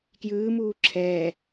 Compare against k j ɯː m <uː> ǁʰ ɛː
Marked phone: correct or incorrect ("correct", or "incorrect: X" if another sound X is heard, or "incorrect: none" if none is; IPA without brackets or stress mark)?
correct